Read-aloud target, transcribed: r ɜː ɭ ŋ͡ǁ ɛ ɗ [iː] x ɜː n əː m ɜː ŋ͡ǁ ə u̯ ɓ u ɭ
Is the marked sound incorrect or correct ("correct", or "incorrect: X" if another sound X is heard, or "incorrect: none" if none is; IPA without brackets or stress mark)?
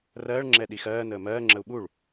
incorrect: i